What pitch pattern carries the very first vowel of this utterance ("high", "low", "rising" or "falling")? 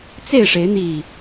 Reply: falling